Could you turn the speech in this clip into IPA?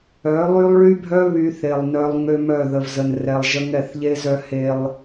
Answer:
œ˨˦ lˠ y˦ lˠ ɭ y˦ bʱ œ˦ β y˦ θ e˨ lˠ n œ˦ lˠ ŋ ø˦ m œ˦˨ ð ə˨ v z ə˨ n r ɛ˨ lˠ ʒ ə˦ ŋ ɛ˦˨ θ ʎ e˦ z œ˦ h e˦ lˠ

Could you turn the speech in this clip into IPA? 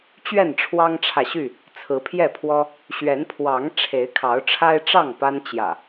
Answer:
t͡ɕ ɥ ɛ˥˨ n ʈ͡ʂʰ w ɑ˦ ŋ ʈ͡ʂʰ ä˨ ɕ y˥˨ | t͡sʰ ɹ̩˨˦ pʰ j ɛ˥˨ pʰ w ɔ˦ | ɕ ɥ ɛ˨˦ n pʰ w ɑ˨˦ ŋ ʈ͡ʂʰ e˨˦ ɪ̯ kʰ ɑ˨˦ ʊ̯ ʈ͡ʂʰ a˦ ɪ̯ ʈ͡ʂ ɑ˥˨ ŋ p a˦ n t͡ɕ j ä̰˨˩

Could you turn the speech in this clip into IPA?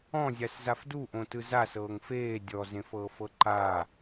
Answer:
ɔ̃ zʲ a s z a f d u ʔ õ t ɯ z a s ɤː ŋ f eː dʲ ɔ z ẽ f ɤː f ɤ ǃ a

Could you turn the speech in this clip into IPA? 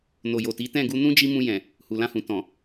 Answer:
n o˨ j o˨ t i˨˦ t ɛ̃˦˨ ɡ u˧ n ũ˦ d͡ʒ i˦ m ũ˧ j ɛ̃˨ | h u˨ l ã˧ h ũ˨ t ɔ̃˨

